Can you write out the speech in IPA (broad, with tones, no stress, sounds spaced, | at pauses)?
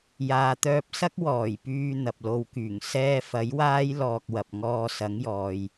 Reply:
j aː˨ t̪ œː˧ p̚ s ɐ˥ k̚ w ɔː˨˩ j p yː˧ n̪ ɐ˨ p̚ l o˧ w k yː˨˩ ŋ s ɛː˥ f ɐ˨˥ j w aː˥ j l ɔː˧ k̚ w ɐ˨ p̚ ŋ ɔː˧ s ɐ˨˥ ŋ j ɔː˨ j